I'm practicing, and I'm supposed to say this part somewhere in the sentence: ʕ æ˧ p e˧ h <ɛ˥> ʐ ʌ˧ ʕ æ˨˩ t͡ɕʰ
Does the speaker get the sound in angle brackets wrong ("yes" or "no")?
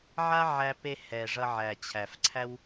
yes